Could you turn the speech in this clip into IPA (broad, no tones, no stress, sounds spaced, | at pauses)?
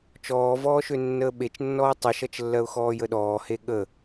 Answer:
t͡ʃ ɔː v ɔː ʃ ø nː əː ɓ e t͡ʃ nː ɔː tˤ e ʃ ʌ t͡ʃ lː ɜ ʊ̯ x ɔː j ə ɗ ɔː h e ɠ ə